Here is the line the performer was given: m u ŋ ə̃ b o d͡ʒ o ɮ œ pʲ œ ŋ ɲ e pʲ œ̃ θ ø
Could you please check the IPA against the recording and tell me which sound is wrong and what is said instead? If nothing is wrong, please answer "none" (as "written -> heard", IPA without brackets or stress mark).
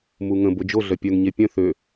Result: none